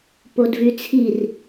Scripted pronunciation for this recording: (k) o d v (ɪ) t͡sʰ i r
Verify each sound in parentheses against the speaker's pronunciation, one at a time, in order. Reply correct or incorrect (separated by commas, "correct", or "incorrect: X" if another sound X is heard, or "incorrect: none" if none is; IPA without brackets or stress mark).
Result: incorrect: p, incorrect: y